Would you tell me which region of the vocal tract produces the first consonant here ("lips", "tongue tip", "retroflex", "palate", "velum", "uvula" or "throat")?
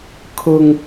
velum